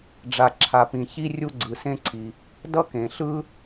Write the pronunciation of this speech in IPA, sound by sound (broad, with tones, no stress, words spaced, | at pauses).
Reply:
ɖ͡ʐa˩ ǁʰa˩pĩ˩çi˥ rʲu˥ɡ͡ǀɯ˩sẽ˥ǀʰi˩ | dʌ˥kẽ˩ɬɯ˥